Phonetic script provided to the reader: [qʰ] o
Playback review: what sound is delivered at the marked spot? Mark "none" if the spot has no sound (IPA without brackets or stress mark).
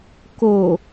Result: k